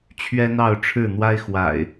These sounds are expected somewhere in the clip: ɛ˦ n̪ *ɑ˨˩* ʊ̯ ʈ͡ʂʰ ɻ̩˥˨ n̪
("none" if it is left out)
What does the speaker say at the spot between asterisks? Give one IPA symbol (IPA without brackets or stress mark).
ɑ˥˨